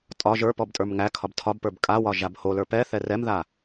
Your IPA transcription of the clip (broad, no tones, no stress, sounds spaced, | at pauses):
tʼ ɒ ʒ ə˞ p ɔ b tʼ ə˞ m ŋ æ kʰ ɒ b tʰ ɒ b p ə˞ b kʼ a w ɒ ʒ a b h o l ə˞ p ɛ θ ɛ r ɛ m ð a